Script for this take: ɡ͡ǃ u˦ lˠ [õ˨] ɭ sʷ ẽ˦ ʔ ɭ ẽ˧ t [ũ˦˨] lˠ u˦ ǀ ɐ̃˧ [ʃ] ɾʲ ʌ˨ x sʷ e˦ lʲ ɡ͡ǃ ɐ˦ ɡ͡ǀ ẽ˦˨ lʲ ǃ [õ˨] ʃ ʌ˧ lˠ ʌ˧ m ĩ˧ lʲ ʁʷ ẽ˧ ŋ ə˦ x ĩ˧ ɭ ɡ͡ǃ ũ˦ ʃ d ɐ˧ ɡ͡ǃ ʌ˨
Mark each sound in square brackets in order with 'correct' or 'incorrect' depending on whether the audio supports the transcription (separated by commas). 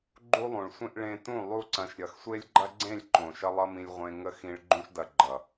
incorrect, correct, correct, correct